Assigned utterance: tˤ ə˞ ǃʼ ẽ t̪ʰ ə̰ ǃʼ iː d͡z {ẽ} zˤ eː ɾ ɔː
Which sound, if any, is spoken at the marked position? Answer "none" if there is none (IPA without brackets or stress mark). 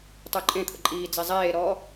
e